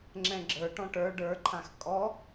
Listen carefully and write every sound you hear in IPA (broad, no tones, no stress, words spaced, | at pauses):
ŋ͡ǁɛ̃ɡ͡ǁə˞ ʈɔ̃ʈə˞ ɖə˞ǃʰãx kʼɔ